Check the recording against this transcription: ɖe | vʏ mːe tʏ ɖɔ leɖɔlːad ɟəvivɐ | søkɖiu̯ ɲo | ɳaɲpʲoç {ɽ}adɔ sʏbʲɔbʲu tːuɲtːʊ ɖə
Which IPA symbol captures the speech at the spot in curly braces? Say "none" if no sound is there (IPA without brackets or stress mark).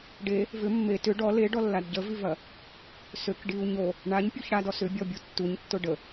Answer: ɽ